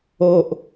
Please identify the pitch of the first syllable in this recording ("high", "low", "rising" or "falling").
low